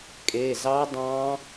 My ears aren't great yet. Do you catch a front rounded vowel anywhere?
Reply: no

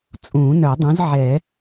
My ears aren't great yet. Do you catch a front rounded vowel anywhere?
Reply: yes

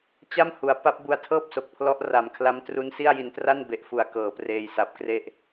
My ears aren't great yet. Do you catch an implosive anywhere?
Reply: no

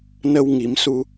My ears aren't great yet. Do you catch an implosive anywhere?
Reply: no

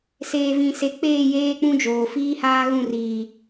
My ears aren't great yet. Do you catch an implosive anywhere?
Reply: no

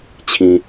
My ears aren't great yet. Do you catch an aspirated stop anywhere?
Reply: yes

